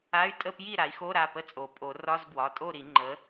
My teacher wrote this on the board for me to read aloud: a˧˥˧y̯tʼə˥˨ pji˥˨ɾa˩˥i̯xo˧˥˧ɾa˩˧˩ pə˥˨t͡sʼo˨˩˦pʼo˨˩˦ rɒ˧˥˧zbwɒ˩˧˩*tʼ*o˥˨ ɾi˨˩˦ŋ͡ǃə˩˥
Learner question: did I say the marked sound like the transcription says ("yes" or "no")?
yes